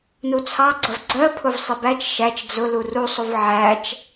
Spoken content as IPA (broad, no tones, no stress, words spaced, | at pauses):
nut͡sʰɑɡ͡ǀʌv ɡ͡ǀɜpʰʊv sˤɪbæt͡ʃ ʃæt͡ʃ d͡zʊ lurusˤuv ʕæt͡ʃ